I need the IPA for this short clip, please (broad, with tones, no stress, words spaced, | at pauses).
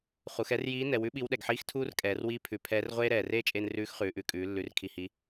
χu˩˧xɛ˧˥rjiː˧˥ nɛ˩˧wʉ˥ ɓi˧˥wɗɛ˩ɡħiː˥x tʰuː˥rkʼɛː˩˧rwiː˧˥ pʰʉ˩˧ pʰɛː˧˥rʁʷeː˥ ɾɛː˩reː˥t͡ʃʼe˧n rʉː˧˥xχʉː˩˧ʔʉ˩˧kʼʉː˩˧ lːʉ˩˧r kʰi˩hi˩˧